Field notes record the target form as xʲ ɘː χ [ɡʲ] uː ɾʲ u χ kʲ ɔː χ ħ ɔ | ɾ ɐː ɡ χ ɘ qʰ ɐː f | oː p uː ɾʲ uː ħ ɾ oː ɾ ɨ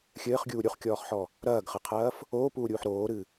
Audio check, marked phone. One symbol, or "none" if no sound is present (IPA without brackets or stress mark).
ɡʲ